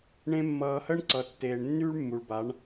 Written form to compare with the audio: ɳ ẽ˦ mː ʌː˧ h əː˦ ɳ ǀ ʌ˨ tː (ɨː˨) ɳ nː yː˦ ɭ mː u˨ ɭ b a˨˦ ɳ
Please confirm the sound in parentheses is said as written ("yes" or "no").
no